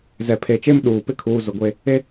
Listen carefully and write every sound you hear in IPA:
z ɛ˨ pʰ e˨ t͡ʃ e˦ m ɗ uː˨ p ɪ˦ kʰ uː˨ z ʊ˨ ɡʷ e˦ | e˦

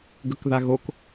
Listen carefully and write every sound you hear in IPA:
ɡ ɵ k ð a ɣ o k

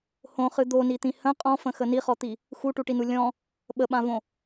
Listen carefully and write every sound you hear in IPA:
h õ χ ɨ d̪ o n i t̪ ĩ h ə̃ qʼ ɔ̃ f ə̃ x ə n i χ ɔ t̪ i | x u ʈ u ʈ i n u lʲ ɔ̃ | ɓ ə ɓ ã v õ

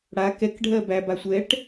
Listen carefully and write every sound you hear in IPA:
ɽ a k ɛ k ɖʱ ɜ b æ b a sʷ ɛ ʈ

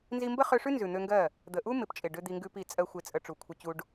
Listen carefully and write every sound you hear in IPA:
n z i˧ m b ə˦ χ ø˧ ʂ ʉ˦ n z ʉ˨ n̪ ø˧ ŋ ɡ ɜ˦˨ | d̪ ə˨ ʔ u˦ m ɪ˨ p t͡ʃʼ ɪ˨ ɖ ø˦ d̪ i˧ ŋ ɡ ʉ˦ p i˦˨ t͡sʼ ɜ˦ xʷ ɪ˧ t͡sʼ ə˧ ʈ͡ʂ u˨ kʷʰ ə˧ t͡ɕ u˧ ɖ

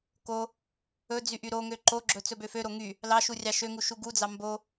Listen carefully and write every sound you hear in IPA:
k o | ɵ d͡z y ʔ y ɾ o ŋ ø ǃ o ɡ͡ǁ ɵ t͡s ɵ b ø f ø ɾ o ŋ y | l ɑ ʃ u rʲ ɑ ʃ ø ŋ u ʃ u ɡ u d͡z ɑ m b o

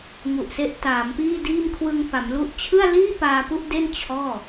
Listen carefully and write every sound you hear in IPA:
ŋ u˨˩ ʔ s e˦˥ ʔ t aː˩˦ m p iː˥˩ d iː˥˩ m kʰ w ɯ˧ ŋ f a˩˦ m l u˥˩ ʔ t͡ɕʰ ɯ˥˩ a̯ l iː˥˩ p aː˧ p u˥˩ ʔ d e˥˩ n t͡ɕʰ ɔː˥˩

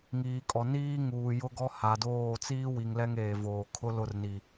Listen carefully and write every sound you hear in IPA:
ŋ iː˨ kʼ ɔ˨ n iː˦ ŋ uː˨ j ʊ˦ ɡ ɔ˦ h a˨ d oː˦˨ t͡s iː˦ w i˨ ŋ l ɛ˦ ŋ eː˨ v oː˨ kʰ ʊ˦ l ʊ˦˨ r n i˨

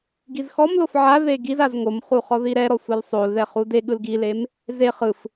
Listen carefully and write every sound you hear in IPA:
ɡ i z x ɔ m l o f ʕ a ð e ɡ i z a z ŋ o m χ u χ ɔ ð i ɾ ɛ ɾ ɔ sʷ ɛ l sˤ o l ð ɛ χ u d e ɠ ɯ l ɡ i l e m | z e χ ɯ f

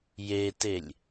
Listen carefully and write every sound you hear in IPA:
j e t e lʲ

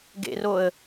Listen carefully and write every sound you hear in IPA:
ɡ ḛ r o ə̯

